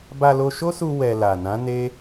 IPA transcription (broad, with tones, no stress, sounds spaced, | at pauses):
b a˧ l o˧ ʃ o˦ s u˧ w ɛ˧ l a˨ n ã˨˦ n e˦